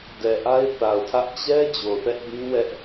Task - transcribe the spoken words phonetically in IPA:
d ɛ˨ ʔ a˦ ɪ̯ θ a˨ ʊ̯ tʰ ä˦ ʔ t͡ɕ ɛ˦ d͡ʑ o˨ θ ɛ˦ ʔ b ĩ˦ w ɛ˦ ʔ

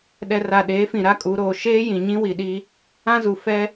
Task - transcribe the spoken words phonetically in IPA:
ɗ ɛ˨ r a˨ ɗ eː˨˦ f ĩ˨ ɾ a˦ kʼ u˨˦ ɾ oː˨ ʃ eː˦ j ĩ˨ ɲ ĩ˦ w i˨ ɗ i˦ | ã˦ z u˨ f ɛ˦

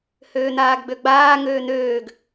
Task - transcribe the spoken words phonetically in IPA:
h øː n̪ aː ɡ ɡ͡b ø ɡ͡b aː ŋ øː n̪ øː ɡ

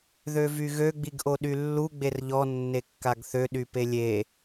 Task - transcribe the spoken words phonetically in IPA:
ð ø v y ɣ ø ɡ͡b i ɡ ʔ o ɗ y lː u ɡ͡b e r ʎ ɔ nː e kː a ɡ θ ø ɗ y p e lʲ e

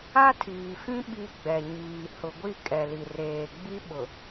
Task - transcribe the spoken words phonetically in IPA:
a˦ tʰ iː˨ f ĩ˦ ɓ i˦ ɡ͡b ɛ˨ ɲ iː˨ h ʊ˨ ɡʷ i˦˨ kʼ ɛ˨ l i˨ r eː˨ ɡ͡b i˦ ɓ ʊ˨

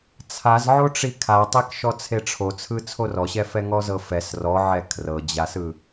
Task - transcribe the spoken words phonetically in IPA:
t͡sʰ a z ʕ o ʈ͡ʂ i kʰ a tˤ e k ʃ ɔ t͡sʰ e ʈ͡ʂʰ o t͡sʰ ɯ t͡sʰ o r ɔ ɕ ɛ f ɛ ŋ ɔ z ɤ f ɛ s r ɔ ʕ ɛ kʰ r ɤ d͡ʑ a s ɯ

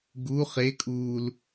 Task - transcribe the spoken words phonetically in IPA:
ɡ u χ e kʼ uː l

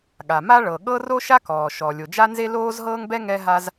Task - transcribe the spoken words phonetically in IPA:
ɠ a˩ m a˥ ɭ ɤ˩ ɠ ɤ˥ r o˥ ʃ a˥ k ɔː˩ ʃ ɔ˩ lʲ o˩ d͡ʒ a˥ n z e˥ l oː˥ z ɦ ɤː˥ ŋ b ɛ˥ ŋ ɛ˥ ɦ a˥ z

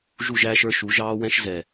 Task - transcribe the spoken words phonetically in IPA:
ʒ u˦˨ ʒ æː˦ ʃ ə˞˦ ʃ u˨˦ ʒ ɑː˦ w ɛ̃˦ ʃ z ɛ˨

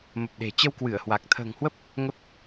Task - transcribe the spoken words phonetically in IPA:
m ə˨˩ p̚ ɗ e̤˨˩ t͡ɕ ə˧ w k w ɨ˧˩ ə̯ h w a˨˩ k̚ t̪ʰ ə̤ː˨˩ ŋ h w ə˦˥ p̚ | ŋ ə˦˥ p̚

